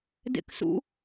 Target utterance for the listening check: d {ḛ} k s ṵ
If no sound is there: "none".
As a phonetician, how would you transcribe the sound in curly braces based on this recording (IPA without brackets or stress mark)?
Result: ḛ